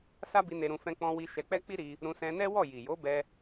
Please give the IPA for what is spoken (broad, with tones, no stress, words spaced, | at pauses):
sa˦bi˧ ne˧ɾũ˧ fɛ̃˧k͡pɔ̃˧wi˧ ʃɛ˧k͡pɛ˦k͡pi˦ ɾi˧ | ɾũ˧ sɛ̃˧nɛ˦wɔ˦˨ ji˨jo˨˦ bɛ˧